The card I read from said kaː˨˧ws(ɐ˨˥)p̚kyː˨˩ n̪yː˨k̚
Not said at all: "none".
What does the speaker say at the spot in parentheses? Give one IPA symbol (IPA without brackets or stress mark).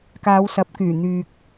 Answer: ɐ˨˥